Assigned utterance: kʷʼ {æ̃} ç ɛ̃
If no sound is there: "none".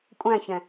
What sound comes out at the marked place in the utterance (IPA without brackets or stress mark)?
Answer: æ̃